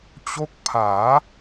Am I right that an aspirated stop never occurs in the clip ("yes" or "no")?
no